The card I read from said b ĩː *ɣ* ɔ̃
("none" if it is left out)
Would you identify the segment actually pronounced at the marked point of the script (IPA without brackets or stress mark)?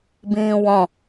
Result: w